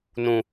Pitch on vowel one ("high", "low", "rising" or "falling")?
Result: low